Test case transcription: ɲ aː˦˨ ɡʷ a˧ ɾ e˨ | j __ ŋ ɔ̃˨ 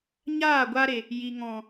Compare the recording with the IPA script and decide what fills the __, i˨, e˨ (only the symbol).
i˨